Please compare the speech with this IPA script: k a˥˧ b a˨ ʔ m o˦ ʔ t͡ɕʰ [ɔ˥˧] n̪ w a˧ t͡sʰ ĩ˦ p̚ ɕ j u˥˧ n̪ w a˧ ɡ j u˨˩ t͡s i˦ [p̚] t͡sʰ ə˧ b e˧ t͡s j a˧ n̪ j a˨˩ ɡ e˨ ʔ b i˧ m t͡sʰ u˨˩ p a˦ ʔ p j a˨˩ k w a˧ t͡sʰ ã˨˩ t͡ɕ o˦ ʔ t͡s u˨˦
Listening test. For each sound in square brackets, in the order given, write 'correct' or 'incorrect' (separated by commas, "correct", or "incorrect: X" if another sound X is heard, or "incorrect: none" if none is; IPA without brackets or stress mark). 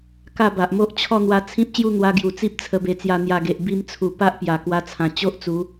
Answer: correct, correct